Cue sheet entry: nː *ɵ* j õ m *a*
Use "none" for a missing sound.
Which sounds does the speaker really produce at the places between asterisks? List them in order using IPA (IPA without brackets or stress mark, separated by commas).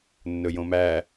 ɵ, æ